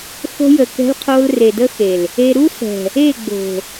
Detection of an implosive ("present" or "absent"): absent